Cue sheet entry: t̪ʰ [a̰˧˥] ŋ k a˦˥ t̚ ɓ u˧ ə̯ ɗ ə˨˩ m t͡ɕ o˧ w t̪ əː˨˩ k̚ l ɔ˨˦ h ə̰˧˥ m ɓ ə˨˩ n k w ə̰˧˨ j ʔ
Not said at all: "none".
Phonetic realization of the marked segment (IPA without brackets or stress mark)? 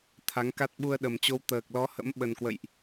a˨˦